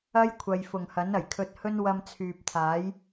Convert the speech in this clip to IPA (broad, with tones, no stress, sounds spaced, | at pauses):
ɐ˥ j kʷʰ ɐ˨ j f ʊ˨˩ ŋ h ɐ˨˥ n ɐ˨˩ j kʰ ɵ˧ t̚ h ɵ˥ n w ɐ˧ m t͡sʰ yː˨ p̚ t̪ʰ aː˨˥ j